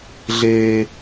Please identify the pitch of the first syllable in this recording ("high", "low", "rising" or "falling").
high